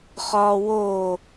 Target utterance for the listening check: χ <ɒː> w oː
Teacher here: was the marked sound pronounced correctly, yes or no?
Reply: yes